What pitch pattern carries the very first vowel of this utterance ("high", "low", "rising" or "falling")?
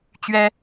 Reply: high